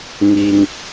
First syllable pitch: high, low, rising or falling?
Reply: low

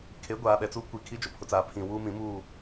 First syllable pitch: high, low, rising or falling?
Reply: rising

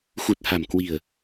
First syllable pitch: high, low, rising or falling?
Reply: low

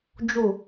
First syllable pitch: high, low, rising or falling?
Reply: falling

